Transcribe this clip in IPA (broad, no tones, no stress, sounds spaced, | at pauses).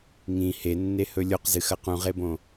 ŋ ĩ h e nː e h ɵ lʲ o q z ɨ x ɐ q ũ ʁ e b õ